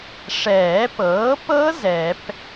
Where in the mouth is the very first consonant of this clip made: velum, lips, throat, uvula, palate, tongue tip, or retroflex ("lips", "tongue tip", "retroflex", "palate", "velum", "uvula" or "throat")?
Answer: retroflex